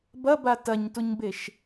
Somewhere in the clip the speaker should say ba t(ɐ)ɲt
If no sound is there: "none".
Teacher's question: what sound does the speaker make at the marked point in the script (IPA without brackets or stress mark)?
ɐ